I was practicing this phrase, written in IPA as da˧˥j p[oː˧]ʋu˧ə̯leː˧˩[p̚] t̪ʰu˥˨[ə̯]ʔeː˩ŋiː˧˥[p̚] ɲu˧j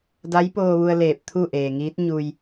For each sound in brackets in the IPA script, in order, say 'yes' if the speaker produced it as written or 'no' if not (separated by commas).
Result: yes, yes, no, no